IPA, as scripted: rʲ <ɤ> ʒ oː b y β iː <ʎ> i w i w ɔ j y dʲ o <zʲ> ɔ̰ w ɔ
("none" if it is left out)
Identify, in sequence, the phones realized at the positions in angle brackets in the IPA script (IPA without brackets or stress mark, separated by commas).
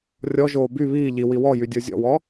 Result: ɔ, ʎ, zʲ